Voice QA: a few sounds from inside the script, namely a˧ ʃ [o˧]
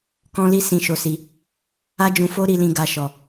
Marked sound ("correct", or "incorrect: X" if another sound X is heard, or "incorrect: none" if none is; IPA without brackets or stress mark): incorrect: ɔ˧